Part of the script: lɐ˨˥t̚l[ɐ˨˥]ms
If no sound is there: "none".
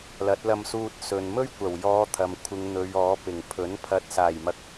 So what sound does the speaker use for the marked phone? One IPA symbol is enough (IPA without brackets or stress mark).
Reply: ɐ˧